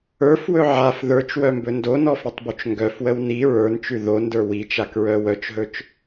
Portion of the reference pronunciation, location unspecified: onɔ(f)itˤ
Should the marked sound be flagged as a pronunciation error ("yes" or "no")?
no